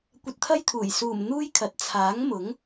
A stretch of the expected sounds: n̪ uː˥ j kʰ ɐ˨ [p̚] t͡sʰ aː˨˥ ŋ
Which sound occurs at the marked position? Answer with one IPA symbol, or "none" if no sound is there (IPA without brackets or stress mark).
t̚